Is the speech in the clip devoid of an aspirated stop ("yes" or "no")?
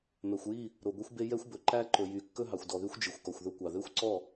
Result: yes